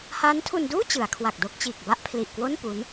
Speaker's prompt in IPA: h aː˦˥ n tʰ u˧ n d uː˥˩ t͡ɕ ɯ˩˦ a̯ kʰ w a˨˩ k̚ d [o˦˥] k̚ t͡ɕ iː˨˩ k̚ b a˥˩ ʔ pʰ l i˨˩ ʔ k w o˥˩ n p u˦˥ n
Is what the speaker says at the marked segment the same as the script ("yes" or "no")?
no